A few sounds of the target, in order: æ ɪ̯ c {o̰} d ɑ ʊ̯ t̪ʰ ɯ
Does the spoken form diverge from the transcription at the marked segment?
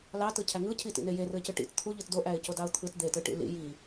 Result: yes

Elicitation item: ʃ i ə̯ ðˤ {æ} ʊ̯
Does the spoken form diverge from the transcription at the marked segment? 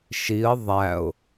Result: no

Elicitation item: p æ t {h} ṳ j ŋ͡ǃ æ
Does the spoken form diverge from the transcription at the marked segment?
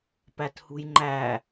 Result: no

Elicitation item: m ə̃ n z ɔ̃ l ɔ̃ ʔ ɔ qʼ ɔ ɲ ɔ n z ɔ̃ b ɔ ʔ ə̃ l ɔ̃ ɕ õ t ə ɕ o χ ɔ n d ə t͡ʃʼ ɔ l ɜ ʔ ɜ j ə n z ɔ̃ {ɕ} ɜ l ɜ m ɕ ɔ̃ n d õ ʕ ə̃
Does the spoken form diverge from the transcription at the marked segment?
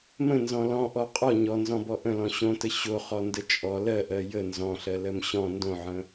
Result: yes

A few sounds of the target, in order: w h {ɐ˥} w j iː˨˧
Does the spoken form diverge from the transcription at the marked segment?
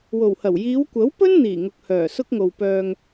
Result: yes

